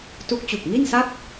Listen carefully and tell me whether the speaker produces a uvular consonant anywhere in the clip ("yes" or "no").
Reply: no